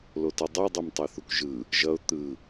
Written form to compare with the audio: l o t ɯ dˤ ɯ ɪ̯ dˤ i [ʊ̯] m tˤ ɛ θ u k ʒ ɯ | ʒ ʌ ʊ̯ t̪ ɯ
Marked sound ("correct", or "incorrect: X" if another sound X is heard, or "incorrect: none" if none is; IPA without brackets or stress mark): incorrect: none